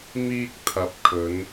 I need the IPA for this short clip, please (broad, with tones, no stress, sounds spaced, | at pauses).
m iː˧ k̚ t̪ʰ ɐ˨˥ p̚ kʰ ɵ˨˧ n